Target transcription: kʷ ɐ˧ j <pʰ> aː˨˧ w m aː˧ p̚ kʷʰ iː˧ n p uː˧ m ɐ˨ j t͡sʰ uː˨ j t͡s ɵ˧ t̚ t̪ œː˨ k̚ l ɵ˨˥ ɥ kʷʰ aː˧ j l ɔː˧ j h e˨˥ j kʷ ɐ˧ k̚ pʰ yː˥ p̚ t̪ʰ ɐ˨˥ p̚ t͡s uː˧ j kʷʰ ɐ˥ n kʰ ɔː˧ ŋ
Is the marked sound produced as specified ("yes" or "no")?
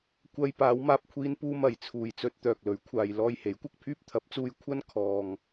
no